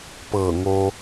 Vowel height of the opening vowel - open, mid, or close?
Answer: mid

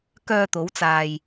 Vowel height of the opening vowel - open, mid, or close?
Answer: mid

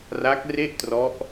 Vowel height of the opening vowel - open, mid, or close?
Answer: open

